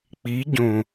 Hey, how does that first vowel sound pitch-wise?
rising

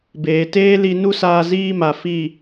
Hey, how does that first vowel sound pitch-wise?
low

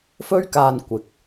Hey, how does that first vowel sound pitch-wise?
high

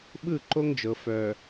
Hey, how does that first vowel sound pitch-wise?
falling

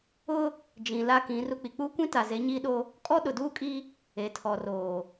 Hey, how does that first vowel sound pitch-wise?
high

